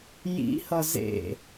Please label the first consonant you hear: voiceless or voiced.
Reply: voiced